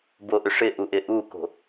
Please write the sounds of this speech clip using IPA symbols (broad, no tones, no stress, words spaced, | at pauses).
boʔʏʂɪʔu ʔɪʔuko̤